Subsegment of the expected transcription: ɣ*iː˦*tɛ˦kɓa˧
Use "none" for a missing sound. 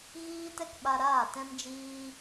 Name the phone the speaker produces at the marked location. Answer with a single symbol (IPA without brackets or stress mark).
iː˦